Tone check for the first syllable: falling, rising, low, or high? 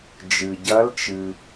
low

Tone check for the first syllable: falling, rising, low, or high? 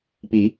rising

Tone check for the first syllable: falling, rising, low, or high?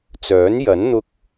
rising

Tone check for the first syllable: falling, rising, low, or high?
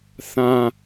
low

